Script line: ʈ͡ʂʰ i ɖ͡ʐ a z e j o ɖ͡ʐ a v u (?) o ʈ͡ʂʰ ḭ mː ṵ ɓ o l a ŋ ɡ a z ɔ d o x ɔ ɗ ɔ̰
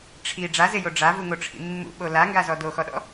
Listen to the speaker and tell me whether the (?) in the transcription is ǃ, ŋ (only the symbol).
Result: ŋ